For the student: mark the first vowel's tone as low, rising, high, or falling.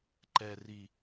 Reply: low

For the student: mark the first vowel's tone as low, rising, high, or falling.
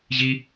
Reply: high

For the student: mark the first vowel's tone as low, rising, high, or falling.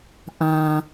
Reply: low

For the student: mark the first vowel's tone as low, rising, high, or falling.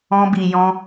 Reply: high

